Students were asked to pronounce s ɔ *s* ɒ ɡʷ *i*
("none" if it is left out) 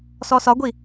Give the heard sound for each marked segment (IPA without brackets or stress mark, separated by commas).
s, i